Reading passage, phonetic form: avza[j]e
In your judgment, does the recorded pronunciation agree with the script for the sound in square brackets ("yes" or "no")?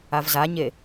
no